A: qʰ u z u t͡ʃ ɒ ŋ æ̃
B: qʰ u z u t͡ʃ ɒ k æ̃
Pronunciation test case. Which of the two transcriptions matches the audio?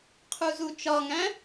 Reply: A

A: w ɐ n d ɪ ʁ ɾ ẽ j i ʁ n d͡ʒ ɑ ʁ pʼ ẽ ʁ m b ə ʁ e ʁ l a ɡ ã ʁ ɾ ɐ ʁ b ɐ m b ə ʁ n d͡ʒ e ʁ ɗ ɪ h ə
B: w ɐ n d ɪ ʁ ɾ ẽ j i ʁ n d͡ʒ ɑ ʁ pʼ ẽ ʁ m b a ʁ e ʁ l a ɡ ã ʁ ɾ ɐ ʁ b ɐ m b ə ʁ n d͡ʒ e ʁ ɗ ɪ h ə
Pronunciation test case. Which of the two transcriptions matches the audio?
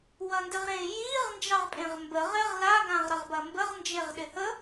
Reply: A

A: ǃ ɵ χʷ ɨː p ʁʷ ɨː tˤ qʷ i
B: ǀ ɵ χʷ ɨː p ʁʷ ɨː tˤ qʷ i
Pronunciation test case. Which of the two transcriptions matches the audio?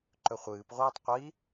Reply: A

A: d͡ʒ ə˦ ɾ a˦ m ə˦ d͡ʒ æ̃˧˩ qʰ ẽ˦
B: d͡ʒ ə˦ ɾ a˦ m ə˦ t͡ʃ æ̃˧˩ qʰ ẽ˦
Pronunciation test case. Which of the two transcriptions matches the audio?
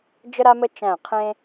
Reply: B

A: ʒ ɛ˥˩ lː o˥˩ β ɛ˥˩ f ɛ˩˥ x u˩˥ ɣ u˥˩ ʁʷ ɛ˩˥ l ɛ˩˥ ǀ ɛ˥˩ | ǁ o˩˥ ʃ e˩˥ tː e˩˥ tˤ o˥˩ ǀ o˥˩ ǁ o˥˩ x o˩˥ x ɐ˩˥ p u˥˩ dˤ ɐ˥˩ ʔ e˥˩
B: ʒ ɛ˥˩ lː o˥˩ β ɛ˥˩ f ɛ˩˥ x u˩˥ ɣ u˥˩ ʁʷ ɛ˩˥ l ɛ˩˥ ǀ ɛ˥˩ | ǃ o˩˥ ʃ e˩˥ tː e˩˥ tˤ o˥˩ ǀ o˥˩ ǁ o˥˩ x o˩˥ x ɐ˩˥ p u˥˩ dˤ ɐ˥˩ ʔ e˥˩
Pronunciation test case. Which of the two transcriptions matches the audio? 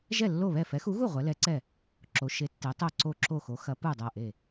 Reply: A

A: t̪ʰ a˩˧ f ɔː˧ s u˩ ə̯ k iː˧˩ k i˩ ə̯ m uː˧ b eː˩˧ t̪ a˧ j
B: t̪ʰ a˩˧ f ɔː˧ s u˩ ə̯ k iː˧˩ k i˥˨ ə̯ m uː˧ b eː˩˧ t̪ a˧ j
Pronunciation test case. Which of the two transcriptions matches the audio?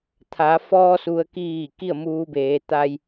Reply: B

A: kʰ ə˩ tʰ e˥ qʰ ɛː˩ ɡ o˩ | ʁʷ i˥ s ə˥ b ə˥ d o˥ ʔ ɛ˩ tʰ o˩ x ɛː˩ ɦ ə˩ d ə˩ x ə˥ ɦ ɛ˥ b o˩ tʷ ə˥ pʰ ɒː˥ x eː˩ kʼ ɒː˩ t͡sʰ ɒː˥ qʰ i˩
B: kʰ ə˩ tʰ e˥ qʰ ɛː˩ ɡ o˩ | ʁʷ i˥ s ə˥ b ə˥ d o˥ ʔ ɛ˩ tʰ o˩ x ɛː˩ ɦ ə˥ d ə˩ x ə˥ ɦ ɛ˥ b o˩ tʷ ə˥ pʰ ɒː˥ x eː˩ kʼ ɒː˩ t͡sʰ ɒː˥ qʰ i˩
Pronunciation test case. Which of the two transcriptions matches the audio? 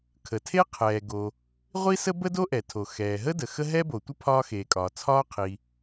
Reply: B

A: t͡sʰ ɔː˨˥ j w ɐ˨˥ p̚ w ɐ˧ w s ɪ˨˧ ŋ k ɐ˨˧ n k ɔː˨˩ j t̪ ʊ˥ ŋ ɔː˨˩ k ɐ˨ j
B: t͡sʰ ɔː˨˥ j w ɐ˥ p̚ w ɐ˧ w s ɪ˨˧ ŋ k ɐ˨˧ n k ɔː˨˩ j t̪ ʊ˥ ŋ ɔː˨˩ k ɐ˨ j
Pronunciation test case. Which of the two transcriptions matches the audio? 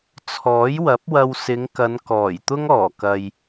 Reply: A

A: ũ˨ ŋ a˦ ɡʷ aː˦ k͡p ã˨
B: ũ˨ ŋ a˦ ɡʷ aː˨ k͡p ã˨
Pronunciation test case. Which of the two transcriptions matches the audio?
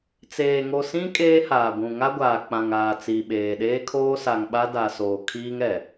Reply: B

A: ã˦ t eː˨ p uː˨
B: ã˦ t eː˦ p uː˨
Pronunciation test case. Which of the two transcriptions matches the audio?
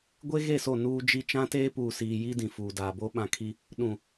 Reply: B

